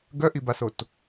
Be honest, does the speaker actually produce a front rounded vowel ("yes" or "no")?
yes